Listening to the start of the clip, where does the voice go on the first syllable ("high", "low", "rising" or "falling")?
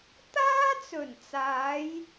high